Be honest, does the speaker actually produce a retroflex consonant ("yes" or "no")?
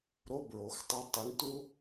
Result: yes